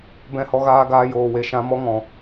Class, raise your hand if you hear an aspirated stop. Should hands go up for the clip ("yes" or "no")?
no